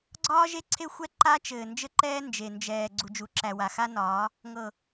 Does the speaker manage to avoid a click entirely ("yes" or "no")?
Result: no